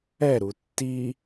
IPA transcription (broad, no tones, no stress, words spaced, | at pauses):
ɛɾu tːi